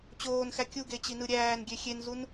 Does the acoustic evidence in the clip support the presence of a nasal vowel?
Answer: no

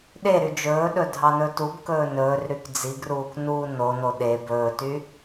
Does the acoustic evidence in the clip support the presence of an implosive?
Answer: yes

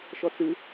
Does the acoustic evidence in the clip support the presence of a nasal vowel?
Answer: no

